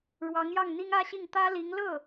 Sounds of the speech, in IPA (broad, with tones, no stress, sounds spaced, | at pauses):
ɻ w ɑ˧˥ ŋ j ɑ˥˩ ŋ n̪ i˥ ŋ ä˥ ɕ i˥˩ ŋ t̪ ä˥ l i˧˥ ŋ l ɤ˥˩